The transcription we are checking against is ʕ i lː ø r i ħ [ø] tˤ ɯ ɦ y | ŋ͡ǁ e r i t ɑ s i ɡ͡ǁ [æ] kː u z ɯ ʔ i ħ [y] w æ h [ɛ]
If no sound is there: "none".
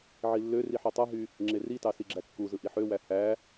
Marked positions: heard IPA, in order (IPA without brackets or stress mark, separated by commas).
ø, æ, ø, æ